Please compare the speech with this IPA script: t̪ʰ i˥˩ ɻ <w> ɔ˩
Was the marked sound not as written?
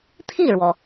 no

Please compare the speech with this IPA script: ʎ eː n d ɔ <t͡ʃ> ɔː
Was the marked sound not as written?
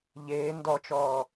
no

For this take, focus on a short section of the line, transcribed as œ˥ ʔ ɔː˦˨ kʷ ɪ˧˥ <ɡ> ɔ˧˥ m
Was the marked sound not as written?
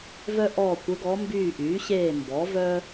no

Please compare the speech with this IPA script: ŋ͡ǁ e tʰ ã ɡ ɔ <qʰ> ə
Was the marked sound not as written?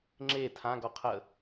no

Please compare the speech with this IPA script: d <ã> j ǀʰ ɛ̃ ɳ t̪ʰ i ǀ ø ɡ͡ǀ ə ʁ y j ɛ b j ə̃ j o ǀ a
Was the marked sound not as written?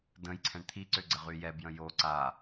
yes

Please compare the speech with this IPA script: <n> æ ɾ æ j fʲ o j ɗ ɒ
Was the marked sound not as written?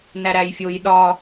no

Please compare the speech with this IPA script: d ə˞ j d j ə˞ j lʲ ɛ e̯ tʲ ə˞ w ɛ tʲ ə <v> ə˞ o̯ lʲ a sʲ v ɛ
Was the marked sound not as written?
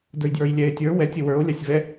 yes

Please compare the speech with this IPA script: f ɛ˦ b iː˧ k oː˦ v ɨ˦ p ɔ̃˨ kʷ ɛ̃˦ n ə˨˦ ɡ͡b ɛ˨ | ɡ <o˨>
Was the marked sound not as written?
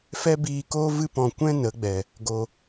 no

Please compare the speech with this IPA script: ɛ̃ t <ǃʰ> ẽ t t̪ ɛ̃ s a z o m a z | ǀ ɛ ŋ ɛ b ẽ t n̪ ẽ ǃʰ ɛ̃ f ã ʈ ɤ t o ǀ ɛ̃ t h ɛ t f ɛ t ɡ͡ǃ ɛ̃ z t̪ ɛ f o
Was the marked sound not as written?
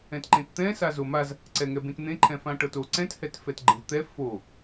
yes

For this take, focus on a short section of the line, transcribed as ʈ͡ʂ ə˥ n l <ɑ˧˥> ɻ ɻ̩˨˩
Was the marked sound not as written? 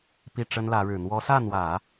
yes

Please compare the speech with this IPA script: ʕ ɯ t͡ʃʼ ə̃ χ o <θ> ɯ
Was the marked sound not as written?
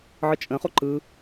yes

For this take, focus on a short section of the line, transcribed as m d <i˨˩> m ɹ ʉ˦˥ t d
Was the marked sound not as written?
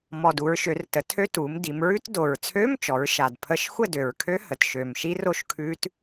yes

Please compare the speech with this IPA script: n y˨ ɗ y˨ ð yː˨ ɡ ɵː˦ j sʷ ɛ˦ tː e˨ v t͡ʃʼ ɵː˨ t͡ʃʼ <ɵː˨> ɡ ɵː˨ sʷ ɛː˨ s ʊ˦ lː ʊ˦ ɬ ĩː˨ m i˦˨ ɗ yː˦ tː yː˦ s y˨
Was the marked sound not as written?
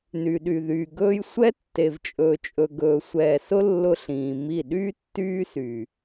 yes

